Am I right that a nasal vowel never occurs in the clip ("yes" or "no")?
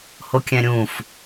no